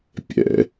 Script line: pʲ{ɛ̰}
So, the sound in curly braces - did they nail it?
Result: yes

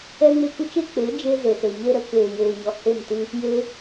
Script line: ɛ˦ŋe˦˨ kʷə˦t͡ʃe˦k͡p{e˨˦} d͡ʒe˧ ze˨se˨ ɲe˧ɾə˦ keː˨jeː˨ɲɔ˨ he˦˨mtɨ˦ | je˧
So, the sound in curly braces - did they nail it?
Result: yes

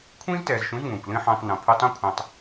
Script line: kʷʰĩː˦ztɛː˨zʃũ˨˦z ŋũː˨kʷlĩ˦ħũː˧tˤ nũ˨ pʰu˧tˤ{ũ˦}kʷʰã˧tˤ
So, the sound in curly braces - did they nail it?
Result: yes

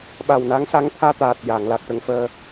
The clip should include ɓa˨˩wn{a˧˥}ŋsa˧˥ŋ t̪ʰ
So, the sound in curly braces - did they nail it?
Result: yes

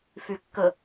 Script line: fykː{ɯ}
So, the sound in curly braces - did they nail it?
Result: no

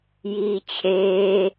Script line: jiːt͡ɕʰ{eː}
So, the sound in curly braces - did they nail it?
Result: yes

